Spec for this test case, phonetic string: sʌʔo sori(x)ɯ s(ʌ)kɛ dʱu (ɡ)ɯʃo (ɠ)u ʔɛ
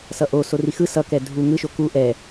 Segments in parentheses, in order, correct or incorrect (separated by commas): correct, correct, incorrect, incorrect